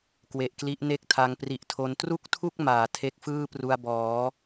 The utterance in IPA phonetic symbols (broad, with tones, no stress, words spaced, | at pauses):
kwe˨˩ʔkli˦˥ʔ ne˥˩k̚tʰa˧ŋ pri˨˩ʔtʰo˧n tru˥˩k̚tʰu˥˩k̚ maː˨˩tʰe˦˥k̚fɯː˥˩pru˧a̯ bɔː˩˦